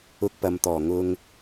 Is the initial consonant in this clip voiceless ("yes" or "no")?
yes